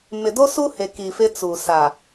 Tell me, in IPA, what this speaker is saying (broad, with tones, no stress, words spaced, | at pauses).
mɪ˨do˦su˦he˨ ki˨fɪ˦ t͡suː˨sa˨